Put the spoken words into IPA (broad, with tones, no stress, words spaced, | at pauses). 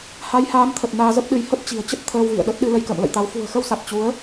ha˨˦jhaː˨˦mt̪ʰə˨˩t̚ naː˧zə˦˥p̚ɗɨ˨˦j hə˦˥p̚t͡ɕi̤˨˩ə̯t͡ɕə˦˥t̚ t̪ʰəː˧wvḭ˧˨ə̯ɗə˦˥t̚ɗɨ˧ lə˧jkə̰ː˧˨mlə̰˧˨jt̪a˨˦w fṳ˨˩ə̯xə˧wsa˨˩t̚ t͡ɕu˨˦ə̯